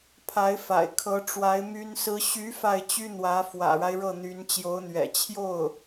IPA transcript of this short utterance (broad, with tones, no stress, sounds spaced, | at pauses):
pʰ a˧˥ ɪ̯ f a̰˨˩ ɪ̯ kʰ ɤ˧˥ ʈ͡ʂ w a˧˥ ɪ̯ m y˥ n s ɹ̩˥ ɕ y˧˥ f a˥˩ ɪ̯ t͡ɕ y˥ n̪ w ä˧˥ f w ä̰˨˩ ɻ a˦ ɪ̯ ɻ ɤ˥˩ n̪ y˧˥ n t͡ɕ j o˧˥ ʊ̯ n̪ ɥ ɛ̰˨˩ t͡ɕʰ j o˥˩ ʊ̯